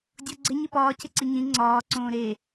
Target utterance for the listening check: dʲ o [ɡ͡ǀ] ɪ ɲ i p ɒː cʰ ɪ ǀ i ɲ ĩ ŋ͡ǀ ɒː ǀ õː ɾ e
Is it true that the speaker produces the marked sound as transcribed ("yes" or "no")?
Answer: yes